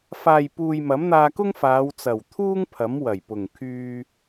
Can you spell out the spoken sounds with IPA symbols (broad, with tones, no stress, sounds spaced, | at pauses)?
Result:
f aː˨ j p uː˨ j m ɐ˨˥ m n̪ aː˧ k ʊ˥ ŋ f aː˨˧ w t͡s ɐ˨˩ w t̪ʰ uː˥ ŋ pʰ ɐ˨˥ m w ɐ˨˩ j p ʊ˨˩ ŋ kʰ yː˧